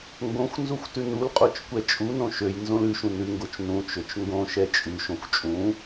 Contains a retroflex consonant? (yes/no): no